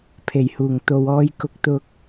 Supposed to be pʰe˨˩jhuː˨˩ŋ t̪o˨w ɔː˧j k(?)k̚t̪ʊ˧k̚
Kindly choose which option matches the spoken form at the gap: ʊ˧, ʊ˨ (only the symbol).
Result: ʊ˧